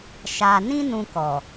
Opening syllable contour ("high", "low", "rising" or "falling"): low